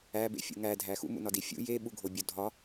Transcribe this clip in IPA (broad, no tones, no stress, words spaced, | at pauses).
æbḛfʲṵ ŋædʱæ xṵmṵnɒdi fʲṵ jeɓuɡʱobʲo dʱɒ